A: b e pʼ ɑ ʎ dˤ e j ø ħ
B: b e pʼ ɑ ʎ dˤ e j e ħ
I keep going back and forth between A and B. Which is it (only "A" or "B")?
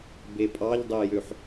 A